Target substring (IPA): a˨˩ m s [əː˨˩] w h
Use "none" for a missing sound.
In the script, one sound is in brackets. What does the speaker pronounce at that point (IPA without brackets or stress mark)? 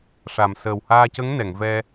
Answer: əː˨˩